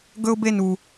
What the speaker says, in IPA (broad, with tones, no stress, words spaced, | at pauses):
ɡɵ˥ʊ̯ be˦nu˨